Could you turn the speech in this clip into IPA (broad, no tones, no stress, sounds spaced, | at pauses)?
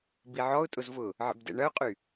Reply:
b i ʕ ɔ ʊ̯ tʼ ʊ z v ʊ | ʕ ə̰ b d ɛ̰ ɳ ɐ ʊ̯ qʼ y